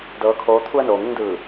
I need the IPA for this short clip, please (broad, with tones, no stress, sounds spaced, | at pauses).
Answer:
d ɤː˧˥ kʰ oː˧˥ t̪ʰ u˧ ə̯ n oː˩ ŋ u˧ ŋ d ɯː˧˩